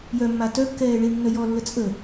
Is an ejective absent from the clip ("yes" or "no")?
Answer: no